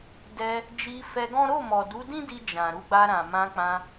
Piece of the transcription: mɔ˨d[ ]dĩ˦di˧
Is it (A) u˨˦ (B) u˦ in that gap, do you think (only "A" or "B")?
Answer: A